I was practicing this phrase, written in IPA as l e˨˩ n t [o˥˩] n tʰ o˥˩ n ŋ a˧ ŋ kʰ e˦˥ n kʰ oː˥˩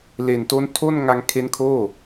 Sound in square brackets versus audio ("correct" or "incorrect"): incorrect